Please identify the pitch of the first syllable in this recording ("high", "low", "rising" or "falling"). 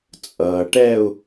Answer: low